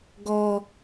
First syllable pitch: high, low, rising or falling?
low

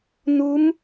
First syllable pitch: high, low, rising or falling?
rising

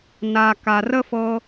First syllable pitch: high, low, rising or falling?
low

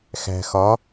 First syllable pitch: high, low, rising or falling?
low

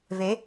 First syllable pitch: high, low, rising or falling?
rising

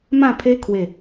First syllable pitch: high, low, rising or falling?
falling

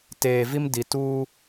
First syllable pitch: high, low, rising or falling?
low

